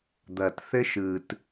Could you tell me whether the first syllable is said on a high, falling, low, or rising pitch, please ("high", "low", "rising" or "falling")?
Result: low